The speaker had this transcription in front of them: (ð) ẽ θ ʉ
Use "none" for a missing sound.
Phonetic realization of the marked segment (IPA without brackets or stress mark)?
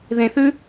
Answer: ð